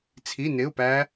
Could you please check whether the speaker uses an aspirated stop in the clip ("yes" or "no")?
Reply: yes